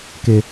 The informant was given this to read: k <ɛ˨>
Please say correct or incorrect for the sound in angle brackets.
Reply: incorrect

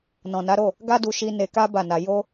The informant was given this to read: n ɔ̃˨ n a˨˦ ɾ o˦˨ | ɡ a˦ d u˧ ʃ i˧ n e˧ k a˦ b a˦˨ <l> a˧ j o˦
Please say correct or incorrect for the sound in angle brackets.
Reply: incorrect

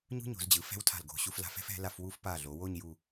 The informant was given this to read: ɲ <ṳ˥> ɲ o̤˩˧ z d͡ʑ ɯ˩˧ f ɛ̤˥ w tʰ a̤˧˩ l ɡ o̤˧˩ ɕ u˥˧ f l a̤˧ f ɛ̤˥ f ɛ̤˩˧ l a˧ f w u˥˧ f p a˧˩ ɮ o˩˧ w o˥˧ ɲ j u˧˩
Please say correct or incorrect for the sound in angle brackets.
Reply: correct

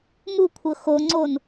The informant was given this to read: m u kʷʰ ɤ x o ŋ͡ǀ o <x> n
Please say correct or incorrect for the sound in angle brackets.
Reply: incorrect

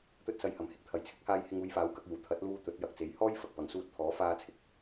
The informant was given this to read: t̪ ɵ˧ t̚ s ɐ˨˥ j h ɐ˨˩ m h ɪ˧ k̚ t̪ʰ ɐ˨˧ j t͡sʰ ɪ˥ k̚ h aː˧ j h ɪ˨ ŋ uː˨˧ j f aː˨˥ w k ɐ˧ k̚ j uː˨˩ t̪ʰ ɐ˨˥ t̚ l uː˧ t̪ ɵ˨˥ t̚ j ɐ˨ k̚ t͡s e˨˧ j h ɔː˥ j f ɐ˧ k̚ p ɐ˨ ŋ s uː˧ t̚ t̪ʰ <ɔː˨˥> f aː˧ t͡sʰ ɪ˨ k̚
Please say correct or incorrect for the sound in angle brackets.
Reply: correct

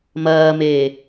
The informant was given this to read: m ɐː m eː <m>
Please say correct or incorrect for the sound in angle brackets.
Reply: incorrect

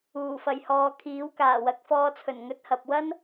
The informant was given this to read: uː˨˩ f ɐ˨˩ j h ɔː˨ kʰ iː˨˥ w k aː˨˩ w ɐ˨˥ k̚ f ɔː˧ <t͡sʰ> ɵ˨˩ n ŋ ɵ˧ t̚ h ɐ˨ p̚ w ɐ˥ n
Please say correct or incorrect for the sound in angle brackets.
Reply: correct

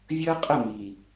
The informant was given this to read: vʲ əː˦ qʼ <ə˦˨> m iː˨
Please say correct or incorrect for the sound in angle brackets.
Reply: correct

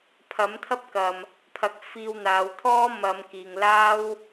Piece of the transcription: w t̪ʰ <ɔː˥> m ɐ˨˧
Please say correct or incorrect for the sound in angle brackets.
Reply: correct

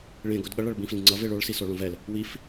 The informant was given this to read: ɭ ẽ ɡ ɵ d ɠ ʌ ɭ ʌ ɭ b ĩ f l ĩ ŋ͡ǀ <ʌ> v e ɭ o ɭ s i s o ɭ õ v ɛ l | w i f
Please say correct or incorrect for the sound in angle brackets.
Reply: correct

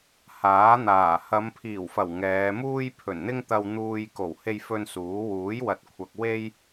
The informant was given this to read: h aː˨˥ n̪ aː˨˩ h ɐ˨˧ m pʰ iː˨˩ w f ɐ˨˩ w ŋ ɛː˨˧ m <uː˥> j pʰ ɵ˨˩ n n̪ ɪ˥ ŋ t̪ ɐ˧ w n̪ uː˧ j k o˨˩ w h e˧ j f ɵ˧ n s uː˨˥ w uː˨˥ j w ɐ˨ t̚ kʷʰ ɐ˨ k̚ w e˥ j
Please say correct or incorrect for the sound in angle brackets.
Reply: correct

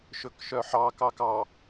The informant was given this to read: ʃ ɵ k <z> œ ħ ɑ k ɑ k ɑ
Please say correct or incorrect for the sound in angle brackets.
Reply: incorrect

